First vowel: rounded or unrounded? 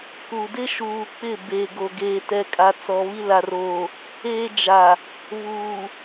rounded